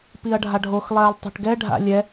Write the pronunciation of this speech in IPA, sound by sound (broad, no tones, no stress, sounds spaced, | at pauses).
p i ɐ̯ ɖʱ a ɖʱ o x lˠ ɛː lˠ tˤ o̤ ʈ ɡ ɛ ɖʱ a̰ lʲ ɛ